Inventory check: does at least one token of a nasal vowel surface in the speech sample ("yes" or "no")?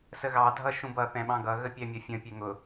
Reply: yes